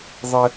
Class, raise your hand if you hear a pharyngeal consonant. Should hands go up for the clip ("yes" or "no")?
no